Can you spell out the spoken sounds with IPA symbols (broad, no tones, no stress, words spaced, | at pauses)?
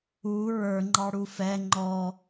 u ɹə˞ŋ͡ǃɑɽu fɛ ŋ͡ǃɔ